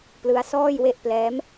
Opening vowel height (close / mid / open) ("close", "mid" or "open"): close